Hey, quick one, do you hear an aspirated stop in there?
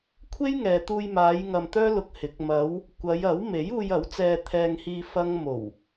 yes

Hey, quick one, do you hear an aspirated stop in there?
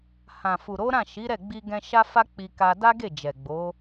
no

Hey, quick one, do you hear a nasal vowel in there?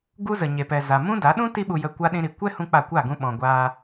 yes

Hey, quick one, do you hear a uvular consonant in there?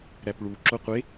yes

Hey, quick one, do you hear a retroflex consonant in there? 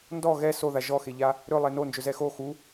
no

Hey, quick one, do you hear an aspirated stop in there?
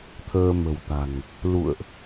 yes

